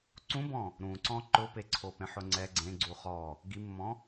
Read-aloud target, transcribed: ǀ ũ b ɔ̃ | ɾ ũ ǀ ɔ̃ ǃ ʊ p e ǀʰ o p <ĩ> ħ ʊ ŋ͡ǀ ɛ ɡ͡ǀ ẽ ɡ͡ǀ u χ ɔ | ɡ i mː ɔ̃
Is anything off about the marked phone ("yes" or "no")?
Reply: yes